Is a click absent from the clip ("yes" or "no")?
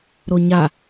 yes